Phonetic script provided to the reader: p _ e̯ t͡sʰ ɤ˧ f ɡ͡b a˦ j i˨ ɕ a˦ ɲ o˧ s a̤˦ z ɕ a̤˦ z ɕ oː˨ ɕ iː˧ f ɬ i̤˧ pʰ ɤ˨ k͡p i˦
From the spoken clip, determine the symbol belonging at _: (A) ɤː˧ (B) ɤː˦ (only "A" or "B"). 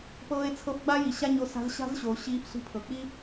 A